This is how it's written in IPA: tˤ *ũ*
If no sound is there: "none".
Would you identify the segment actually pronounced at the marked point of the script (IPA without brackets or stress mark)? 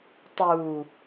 u